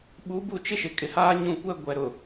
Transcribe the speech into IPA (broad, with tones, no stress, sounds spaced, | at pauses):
ɓ u˨˦ b u˦˨ t͡ʃ ɪ˦ ʃ ɪ˨ kʼ ɪ˨ h aː˦ ɲ ũ˦˨ kʷ ɛ˦ ɡʷ ɛ˨ ɾ ʊ˨